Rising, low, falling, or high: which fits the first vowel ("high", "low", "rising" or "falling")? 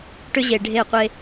high